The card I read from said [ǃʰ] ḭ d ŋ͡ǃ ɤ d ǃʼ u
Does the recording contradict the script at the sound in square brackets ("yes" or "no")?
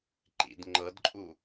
yes